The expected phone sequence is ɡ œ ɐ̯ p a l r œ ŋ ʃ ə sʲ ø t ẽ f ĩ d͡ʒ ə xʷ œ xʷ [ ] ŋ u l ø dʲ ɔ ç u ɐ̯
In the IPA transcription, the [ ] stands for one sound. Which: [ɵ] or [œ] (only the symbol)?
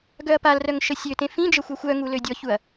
œ